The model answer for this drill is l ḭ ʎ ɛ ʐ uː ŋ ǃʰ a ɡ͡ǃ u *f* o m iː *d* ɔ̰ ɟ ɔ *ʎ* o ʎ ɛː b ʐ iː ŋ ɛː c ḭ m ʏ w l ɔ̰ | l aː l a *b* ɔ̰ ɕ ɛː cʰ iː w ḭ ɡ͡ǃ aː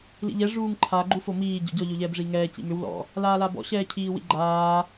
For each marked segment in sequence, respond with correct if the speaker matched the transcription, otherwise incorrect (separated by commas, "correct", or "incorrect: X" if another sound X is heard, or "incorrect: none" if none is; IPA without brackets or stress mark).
correct, incorrect: ɟ, correct, correct